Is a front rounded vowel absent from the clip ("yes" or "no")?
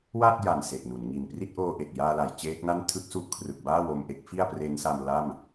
yes